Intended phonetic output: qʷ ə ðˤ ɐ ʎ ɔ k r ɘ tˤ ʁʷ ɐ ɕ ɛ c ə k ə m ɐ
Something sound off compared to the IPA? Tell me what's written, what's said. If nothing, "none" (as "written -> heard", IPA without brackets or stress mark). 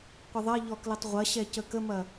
r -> l